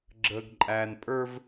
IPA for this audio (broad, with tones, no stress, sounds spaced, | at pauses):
ɡ͡ǁ əː˨ ɡ ǃʼ æː˨ n pʼ ə˞˦ v